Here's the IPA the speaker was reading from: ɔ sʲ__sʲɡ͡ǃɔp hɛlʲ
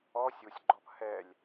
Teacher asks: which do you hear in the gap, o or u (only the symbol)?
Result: u